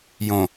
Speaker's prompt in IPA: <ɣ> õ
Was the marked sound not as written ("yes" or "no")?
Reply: yes